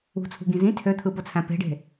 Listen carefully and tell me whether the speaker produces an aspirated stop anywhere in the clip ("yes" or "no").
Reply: yes